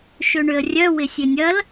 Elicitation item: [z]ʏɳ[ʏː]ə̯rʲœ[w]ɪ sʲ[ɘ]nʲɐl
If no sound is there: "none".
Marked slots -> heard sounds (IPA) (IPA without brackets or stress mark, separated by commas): ʃ, ʏ, w, ø